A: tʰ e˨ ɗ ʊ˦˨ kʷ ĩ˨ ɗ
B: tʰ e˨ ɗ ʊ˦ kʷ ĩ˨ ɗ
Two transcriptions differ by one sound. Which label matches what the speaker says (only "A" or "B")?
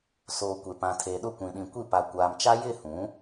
A